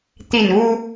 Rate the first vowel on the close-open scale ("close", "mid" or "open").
close